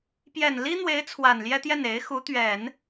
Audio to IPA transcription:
pjɛ˨˩nli˥n̪we˧˥ɪ̯ t͡sʰwa˨˩nljɛ˥t̪jɛ˥˩n e˧˥ɪ̯xu˧˥ t̪ɥɛ˨˩˦n

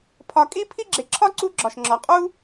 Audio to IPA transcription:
pʰɒ˨kʼi˥pʰi˥ɡ͡ǁe˨ ǁʰɒ˥ǀu˦ɡ͡ǁɒ˩ʃŋ͡ǁɒ˩ qʼu˥

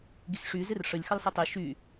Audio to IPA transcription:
ɡixʂy zɪrʂəlʲ xəlsˤitˤi ʃy

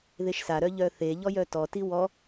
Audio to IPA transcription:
ðeʃsa ɾœʎœθe ʎɔjœtɔ tiwɔ

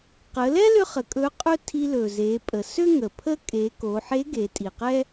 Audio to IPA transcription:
qə˩˧lɛ˥ lʏ˥χə˩˧kʼɵ˧˥qʼɵ˥ tʰi˧lɵ˩ ze˩˧pʼə˩sø˥ ŋə˩pʰə˥ kʼe˩˧ko˩˧ħe˧˥ ɡe˩˧tʼi˩qɛ˥

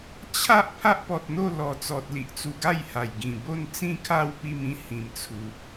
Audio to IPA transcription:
t͡ɕʰa˦ʔ pʰa˦ʔpɔ˨t̚n̪o˥˧ lɔ˨˩t͡sɔ˨t̚ li˨ʔt͡su˧ɡa˥˧jha˨˩j ɡĩ˨˩bo˥˧nt͡sĩ˥˧kʰa˥˧w pi˥˧mĩ˦ hĩ˨˩mt͡sʰu˨p̚

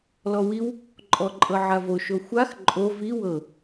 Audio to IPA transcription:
lɔwiw | ǃʼɔǃʼɤʕavo ʃoxʷax ǃʼo vi wɤ

